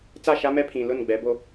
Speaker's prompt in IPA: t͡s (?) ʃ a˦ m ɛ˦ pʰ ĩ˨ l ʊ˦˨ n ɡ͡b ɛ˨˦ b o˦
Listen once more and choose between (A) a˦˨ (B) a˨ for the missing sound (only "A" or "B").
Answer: A